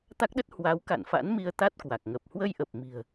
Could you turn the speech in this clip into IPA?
t̪ a˦˥ k̚ ɗ ə˦˥ t̚ h w a˨˦ w k a̰˧˨ n f a̰˧˥ n m i˧ ə̯ t̪ a˦˥ t̚ k w a˨˩ k̚ ŋ ə˨˩ p̚ h w ə˧ j ʔ ə˨˩ p̚ m i̤˨˩ ə̯

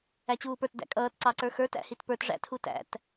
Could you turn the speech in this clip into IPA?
æ t͡ɕ uː p ə˞ t d æ̰ kʼ ʌː t ǀ ɑ ǀ ə˞ x ə˞ t æ̰ h i t p ə˞ t ʐ æ̰ tʰ u t æ̰ t

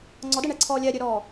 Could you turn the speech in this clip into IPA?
ŋ͡ǀ ɔ d ɛ ɳ ɛ ǀʰ ɔː lʲ ɛ ɾʲ ø ɾ ɔː

